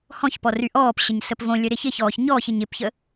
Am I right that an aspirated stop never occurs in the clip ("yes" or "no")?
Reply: yes